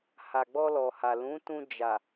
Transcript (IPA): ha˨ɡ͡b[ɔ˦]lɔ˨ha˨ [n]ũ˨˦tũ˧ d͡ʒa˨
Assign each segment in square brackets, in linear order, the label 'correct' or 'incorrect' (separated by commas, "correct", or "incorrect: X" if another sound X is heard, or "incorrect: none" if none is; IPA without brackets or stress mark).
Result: incorrect: ɔ˧, incorrect: l